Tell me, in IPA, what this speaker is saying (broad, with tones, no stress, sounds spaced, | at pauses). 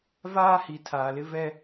v aː˦ h i˨ tʰ aː˨ l ɪ˦ v ɛ˦